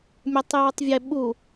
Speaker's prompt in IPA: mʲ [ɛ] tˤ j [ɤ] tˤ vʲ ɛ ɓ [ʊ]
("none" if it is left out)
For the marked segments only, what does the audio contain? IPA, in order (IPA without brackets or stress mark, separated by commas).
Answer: ɛ, ə˞, u